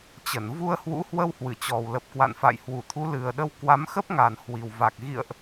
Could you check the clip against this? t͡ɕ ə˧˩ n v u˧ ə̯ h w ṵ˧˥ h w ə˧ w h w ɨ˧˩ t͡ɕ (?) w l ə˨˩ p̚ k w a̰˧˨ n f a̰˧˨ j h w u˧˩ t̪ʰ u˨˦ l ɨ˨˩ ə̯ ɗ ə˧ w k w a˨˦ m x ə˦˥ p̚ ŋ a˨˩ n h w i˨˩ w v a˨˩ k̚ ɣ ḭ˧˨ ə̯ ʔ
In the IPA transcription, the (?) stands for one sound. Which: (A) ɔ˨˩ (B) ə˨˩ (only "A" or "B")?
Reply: A